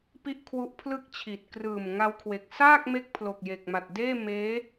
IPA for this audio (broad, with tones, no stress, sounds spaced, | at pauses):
p i˥˩ ʔ kʰ w u˦˥ ʔ pʰ l ɯ˥˩ k̚ t͡ɕʰ i˨˩ t̚ k r ɯː˨˩ m ŋ a˦˥ w kʰ w e˨˩ k̚ s aː˥˩ k̚ m e˦˥ k̚ pʰ l o˨˩ k̚ j e˨˩ k̚ m a˨˩ t̚ d eː˥˩ m eː˦˥